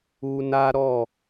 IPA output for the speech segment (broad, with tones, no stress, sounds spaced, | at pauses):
u˦ n a˦ ɾ ɔ˦˨